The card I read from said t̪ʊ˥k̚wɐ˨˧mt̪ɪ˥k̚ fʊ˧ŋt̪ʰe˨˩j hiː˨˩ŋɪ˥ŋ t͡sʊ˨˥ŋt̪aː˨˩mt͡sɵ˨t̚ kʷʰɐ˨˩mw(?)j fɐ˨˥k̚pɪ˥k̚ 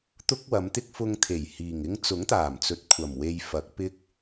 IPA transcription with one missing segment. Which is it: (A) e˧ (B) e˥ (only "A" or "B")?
A